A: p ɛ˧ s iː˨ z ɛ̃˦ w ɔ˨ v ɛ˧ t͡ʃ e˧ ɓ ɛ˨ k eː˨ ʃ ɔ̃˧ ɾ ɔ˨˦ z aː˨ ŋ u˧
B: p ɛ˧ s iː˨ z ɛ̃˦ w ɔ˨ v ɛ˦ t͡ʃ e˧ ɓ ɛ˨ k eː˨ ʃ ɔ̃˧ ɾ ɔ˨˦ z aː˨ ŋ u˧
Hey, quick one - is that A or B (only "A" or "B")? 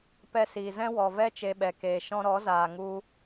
B